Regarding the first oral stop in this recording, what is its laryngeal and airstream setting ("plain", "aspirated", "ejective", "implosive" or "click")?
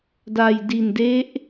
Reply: plain